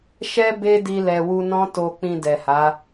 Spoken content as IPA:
ʃ ɛ˦ b e˦ d i˧ l ɛ˨ w u˧ n ɔ̃˦ t o˧ k͡p ĩ˧ d ɛ˨ h a˨˦

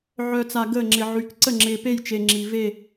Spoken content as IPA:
ʕ œ˨ t͡s a˨ ɡ əː˦˨ ŋ͡ǁ ɪ˨ ʕ y˨ k ǀ ə˦˨ ŋ͡ǁ ɪː˨ p e˦˨ j t͡ʃ e˨ ŋ͡ǁ i˨ v e˦˨

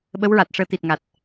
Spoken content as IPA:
ɓ ə˧˥ w ɹ a˨˩ t̚ ʂ əː˧˥ t̪ i˨˩ t̚ ŋ a˨˩ t̚

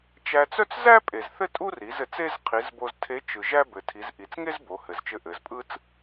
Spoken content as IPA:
t͡ʃ æ˧ t͡s œ˥ t͡s z æ˥ pʼ e˩ z θ ɘ˥ tʼ u˥ r i˩˧ z ɘ˩˧ t͡s e˥ z qʰ i˩˧ z b o˧ z tʰ e˧˥ t͡ʃ ɯ˩ ʒ æ˥ b ɘ˩ tʰ i˩˧ z ʔ i˩ t͡s ŋ e˥ z b o˩˧ h ɘ˩ z t͡ʃ ɘ˧˥ ʔ ɘ˩˧ z pʼ ɯ˥ t͡s

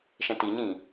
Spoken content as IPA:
ʃ ɛ̃ t i ɲ ĩ

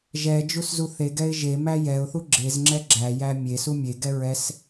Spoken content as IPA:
ʒ ɛ d͡ʒ u s z u θ e ɡ ɛ ɪ̯ ʒ e m æ j ɛ ʊ̯ θ u ɡ͡ǁ e z ŋ͡ǁ ɛ ɡ͡ǁ æ j æ mʲ e s u mʲ e ɡ ɛ ɹ ɛ s

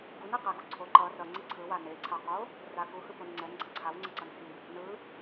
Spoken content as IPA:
ɡ u n ɛ q ɛ ɡ u ǀʰ o ǃ ʌ r ʌ ŋ͡ǀ i ǀʰ ɯ w a n e ǀʰ a q o | r a k u h ɯ p o n ŋ͡ǀ ɛ n ɡ͡ǀ ʌ ǀʰ a w ŋ͡ǀ ʌ ǀ ʌ n h i | n ɯ

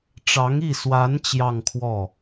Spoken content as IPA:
ʈ͡ʂ ɑ˧˥ ŋ i˥˩ s w a˧˥ n t͡ɕ j ɑ˥˧ ŋ kʰ w ɔ˥˩

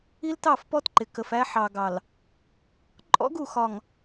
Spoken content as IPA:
i˦ l t ɑ˦˨ f p ɔ˦ t ǃ ɪ˨ k ə˨ f æ˦ ħ ɑ˨ ɡ ɑ˨ l | ǃʼ ɔ̰˦ ɡ u˨ x ɒ˨ ŋ

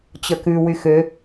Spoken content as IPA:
t͡ɕ ə k ʉ w y x ø

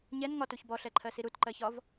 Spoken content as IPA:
ɲ ɛ n ŋ ɒ t u ç b ɔ ɬ ɛ ǃʰ ɜ s i ɾ u t ǃ ɜ ç ɒ v

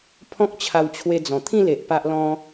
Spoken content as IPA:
pʰ ɔ̃˦ k̚ t͡ɕʰ a˧ w t͡ɕʰ w e˧ d͡z ɔ̃˨˩ t̪ʰ ĩ˥˧ l e˨ ʔ p a˦ ʔ l ɔ̃˦

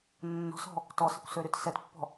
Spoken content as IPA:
nː ɔ̤ s ɔ̤ | t ɔ s ə kʷ s ø ɾ y t s ɛ t pː ɔ̤

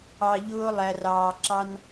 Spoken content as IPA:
ɑ˨ ʎ ʊː˧ lˠ æ˨ r ɑː˨ ǁ ɑ˦ n

